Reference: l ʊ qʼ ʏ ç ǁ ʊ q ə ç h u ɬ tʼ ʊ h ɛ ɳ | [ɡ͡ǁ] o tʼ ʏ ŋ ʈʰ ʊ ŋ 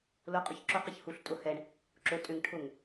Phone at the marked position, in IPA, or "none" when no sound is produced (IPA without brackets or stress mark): ǁ